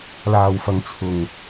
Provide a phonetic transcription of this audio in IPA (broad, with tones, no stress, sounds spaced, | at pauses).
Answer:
l aː˨˩ w f ɐ˨ ŋ t͡sʰ ʊ˨˩ ŋ